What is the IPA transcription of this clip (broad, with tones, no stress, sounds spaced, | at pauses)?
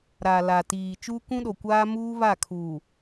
ɾ a˨ l a˨ t iː˨ t͡ʃ uː˦ k ũ˦ ɗ o˨ kʷ aː˦ m uː˦ β a˦˨ kʰ u˨